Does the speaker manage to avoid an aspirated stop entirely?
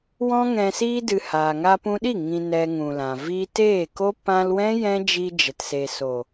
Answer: yes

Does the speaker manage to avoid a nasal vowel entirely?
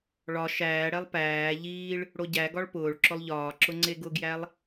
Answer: yes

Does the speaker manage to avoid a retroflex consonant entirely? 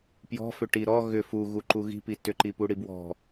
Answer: no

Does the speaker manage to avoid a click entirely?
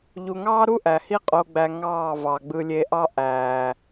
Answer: yes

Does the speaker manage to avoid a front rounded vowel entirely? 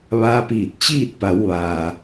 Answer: yes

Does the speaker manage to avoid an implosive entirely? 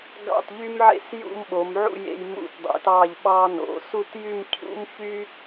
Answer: no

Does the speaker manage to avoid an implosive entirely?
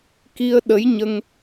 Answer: no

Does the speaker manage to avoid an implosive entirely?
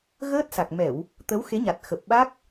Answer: no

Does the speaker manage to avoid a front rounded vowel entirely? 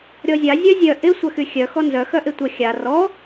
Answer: no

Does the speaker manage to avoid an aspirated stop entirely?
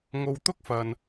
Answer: yes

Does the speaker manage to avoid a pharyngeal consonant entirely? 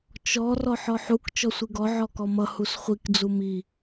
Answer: no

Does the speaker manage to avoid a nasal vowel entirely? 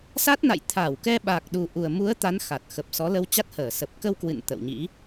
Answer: yes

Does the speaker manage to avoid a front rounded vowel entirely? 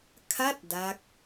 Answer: yes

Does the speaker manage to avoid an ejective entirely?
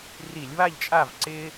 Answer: no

